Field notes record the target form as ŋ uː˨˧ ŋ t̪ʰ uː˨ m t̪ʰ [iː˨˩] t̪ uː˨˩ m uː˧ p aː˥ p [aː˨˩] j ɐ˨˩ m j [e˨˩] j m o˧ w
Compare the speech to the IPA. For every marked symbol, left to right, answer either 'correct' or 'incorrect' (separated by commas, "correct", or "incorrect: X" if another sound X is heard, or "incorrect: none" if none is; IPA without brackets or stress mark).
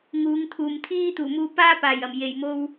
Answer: incorrect: iː˥, correct, correct